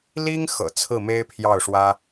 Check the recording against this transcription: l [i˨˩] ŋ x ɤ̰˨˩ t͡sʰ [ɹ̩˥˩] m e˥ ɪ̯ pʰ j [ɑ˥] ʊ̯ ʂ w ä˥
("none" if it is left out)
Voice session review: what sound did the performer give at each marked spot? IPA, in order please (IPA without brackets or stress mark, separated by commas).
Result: i˥, ɹ̩˥˩, ɑ˥˩